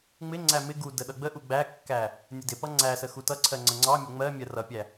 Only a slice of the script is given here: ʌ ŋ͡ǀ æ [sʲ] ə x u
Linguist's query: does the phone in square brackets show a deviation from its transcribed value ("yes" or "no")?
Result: yes